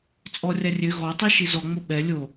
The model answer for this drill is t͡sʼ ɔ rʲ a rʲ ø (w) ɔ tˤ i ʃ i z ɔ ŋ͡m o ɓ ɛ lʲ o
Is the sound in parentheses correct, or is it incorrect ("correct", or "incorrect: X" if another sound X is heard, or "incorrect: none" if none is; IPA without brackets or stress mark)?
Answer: incorrect: ɣ